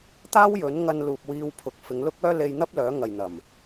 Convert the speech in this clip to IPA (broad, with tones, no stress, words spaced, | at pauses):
t̪aː˥wjɵ˨˥nŋɐ˧n luː˨p̚wiː˧wpʰʊ˨k̚ fɪ˨˧ŋlʊ˥k̚œː˥ le˧jn̪ɐ˥p̚ lœː˨˥ ŋɐ˨jn̪ɐ˨˩m